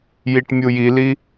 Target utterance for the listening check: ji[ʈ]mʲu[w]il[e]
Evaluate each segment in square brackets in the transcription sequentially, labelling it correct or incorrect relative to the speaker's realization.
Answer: correct, incorrect, incorrect

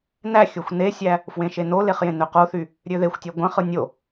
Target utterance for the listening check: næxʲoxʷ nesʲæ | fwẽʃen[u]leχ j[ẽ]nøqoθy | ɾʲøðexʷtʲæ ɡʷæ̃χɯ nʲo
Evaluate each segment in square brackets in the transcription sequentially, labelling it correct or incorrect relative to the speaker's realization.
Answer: incorrect, correct

